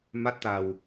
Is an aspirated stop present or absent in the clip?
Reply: absent